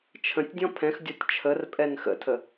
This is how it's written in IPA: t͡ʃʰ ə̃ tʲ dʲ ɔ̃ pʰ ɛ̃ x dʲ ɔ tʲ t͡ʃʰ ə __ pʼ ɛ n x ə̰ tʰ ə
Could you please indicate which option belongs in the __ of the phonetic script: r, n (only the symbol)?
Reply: r